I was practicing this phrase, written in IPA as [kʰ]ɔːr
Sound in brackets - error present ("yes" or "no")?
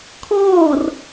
no